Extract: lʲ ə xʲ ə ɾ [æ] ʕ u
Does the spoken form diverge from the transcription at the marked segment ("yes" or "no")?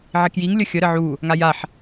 yes